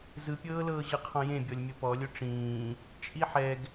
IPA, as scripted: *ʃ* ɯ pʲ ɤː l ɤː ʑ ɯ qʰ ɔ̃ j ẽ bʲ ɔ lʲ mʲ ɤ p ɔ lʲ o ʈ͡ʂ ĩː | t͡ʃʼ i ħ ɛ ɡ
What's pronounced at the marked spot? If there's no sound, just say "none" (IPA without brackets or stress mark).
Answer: z